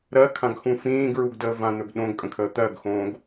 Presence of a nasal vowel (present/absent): present